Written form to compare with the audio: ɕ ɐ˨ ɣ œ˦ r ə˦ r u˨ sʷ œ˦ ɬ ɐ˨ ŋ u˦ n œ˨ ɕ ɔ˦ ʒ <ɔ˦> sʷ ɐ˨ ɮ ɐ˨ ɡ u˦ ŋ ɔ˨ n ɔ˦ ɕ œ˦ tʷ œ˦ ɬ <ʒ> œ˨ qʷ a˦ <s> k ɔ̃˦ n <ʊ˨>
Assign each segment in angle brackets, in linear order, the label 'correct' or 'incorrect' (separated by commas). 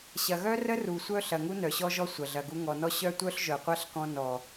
correct, correct, incorrect, incorrect